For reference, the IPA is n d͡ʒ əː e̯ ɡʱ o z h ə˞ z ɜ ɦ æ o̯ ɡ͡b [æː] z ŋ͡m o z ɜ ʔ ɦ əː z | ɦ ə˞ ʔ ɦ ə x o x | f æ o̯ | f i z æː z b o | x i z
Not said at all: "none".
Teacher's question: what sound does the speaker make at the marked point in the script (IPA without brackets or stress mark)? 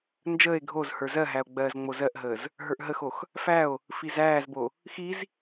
ɜː